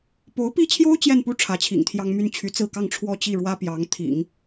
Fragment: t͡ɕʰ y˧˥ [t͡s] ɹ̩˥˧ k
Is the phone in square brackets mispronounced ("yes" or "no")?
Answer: no